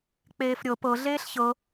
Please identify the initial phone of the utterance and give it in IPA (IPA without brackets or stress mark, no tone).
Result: k͡p